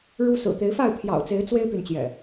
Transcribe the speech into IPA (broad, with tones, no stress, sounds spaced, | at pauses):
ɻ u˦ s ɹ̩˨˩ t̪ e˨˦ ɪ̯ f a˥˨ ɪ̯ pʰ j ɑ̰˨˩ ʊ̯ t͡s e˨˦ ɪ̯ t͡s w e˦ ɪ̯ p y˨ n t͡ɕ j ɛ̰˨˩